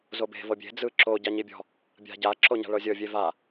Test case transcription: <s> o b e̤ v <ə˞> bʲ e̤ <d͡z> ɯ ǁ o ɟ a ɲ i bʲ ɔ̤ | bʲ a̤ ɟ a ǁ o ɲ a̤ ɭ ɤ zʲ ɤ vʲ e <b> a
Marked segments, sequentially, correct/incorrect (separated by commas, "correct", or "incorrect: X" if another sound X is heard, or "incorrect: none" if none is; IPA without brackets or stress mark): incorrect: z, incorrect: ɤ, correct, incorrect: v